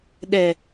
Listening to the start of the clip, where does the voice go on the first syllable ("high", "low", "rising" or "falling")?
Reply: low